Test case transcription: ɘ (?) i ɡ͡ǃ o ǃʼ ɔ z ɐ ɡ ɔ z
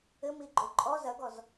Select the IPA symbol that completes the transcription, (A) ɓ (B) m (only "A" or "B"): B